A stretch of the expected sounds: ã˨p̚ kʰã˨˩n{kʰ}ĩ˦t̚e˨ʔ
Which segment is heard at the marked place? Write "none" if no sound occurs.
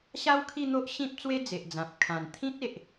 t̪ʰ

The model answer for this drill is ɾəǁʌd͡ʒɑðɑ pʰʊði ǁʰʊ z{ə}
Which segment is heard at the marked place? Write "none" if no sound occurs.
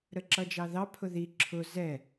ɛ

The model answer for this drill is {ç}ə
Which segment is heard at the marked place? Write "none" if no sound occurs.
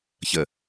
ç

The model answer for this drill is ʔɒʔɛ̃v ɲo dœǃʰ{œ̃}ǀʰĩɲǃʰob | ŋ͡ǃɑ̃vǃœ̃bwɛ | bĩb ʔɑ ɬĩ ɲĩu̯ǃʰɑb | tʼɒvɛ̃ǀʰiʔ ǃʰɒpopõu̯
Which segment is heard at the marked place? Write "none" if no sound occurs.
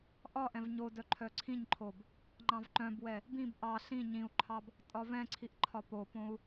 œ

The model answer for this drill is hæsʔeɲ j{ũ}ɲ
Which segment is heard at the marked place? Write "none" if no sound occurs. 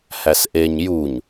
u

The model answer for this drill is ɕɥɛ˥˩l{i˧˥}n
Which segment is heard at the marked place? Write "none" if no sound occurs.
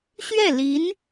i˧˥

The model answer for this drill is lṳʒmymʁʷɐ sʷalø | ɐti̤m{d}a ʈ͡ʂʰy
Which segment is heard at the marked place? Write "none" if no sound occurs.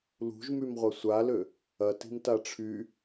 t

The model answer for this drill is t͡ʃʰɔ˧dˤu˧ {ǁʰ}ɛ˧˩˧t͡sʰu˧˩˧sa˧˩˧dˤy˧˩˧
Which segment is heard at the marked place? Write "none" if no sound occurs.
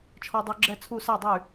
ɡ͡ǁ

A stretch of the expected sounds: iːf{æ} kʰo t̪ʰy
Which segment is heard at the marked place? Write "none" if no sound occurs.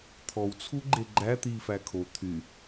æ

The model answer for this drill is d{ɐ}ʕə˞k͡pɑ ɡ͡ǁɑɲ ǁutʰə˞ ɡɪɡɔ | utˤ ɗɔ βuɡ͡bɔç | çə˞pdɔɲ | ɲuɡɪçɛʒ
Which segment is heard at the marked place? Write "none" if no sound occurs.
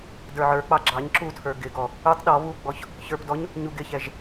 ə˞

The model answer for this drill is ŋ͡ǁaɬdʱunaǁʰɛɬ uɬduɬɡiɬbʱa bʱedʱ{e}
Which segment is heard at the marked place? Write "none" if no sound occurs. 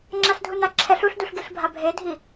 i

